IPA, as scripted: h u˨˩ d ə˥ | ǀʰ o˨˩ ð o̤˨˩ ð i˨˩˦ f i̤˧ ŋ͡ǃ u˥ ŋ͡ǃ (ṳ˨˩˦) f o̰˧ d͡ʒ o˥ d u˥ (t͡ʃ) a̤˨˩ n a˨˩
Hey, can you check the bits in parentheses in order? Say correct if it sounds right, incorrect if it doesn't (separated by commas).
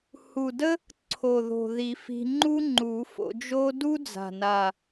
incorrect, incorrect